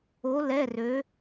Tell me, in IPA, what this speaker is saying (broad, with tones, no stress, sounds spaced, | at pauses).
o˧˥ l ɛ˧˥˧ r ø˧˥